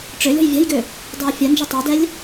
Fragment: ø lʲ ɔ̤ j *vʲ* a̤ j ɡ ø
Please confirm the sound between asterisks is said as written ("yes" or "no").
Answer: yes